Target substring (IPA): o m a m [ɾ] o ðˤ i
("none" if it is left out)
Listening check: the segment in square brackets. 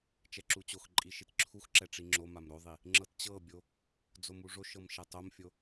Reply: ɾ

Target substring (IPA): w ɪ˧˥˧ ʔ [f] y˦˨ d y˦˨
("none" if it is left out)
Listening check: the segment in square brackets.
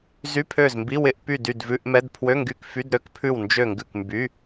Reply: p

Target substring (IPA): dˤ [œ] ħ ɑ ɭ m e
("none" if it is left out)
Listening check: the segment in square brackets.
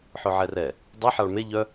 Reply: ɛ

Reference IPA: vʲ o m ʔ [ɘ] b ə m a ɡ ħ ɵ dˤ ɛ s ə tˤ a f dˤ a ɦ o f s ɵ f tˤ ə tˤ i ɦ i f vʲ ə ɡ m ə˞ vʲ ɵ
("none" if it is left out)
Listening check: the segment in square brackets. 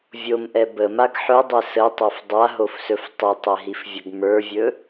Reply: ɛ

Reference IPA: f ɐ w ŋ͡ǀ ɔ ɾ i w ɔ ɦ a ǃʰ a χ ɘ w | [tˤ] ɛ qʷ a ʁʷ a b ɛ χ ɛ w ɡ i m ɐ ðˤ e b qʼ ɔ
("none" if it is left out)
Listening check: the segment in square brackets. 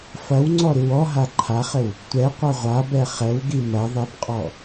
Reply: tʷ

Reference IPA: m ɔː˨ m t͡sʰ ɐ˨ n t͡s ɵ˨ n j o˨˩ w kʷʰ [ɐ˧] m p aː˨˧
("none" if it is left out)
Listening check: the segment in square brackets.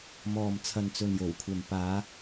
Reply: ɐ˨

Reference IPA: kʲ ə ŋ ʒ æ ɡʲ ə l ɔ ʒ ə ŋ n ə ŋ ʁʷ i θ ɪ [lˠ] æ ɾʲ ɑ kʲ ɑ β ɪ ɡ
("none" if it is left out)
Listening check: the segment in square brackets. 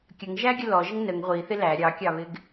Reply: l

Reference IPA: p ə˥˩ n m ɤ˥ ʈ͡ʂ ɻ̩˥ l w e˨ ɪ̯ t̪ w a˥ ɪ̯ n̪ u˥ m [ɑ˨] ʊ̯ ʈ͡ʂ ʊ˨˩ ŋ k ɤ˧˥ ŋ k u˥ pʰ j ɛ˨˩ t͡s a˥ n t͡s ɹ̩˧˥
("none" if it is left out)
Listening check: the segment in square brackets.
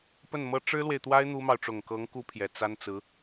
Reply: ɑ˨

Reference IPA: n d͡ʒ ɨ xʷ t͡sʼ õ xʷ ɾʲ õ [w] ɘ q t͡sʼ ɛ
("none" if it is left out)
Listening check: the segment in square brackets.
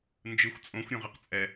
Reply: ʁ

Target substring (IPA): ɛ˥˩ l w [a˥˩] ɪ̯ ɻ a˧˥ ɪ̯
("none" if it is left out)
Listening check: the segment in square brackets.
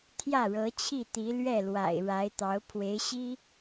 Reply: a̰˨˩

